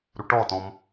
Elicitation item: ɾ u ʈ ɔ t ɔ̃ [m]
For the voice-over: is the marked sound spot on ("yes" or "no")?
yes